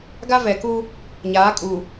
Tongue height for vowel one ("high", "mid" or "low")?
low